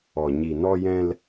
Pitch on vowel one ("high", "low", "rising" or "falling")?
low